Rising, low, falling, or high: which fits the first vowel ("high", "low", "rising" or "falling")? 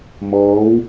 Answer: rising